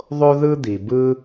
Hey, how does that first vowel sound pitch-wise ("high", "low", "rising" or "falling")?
high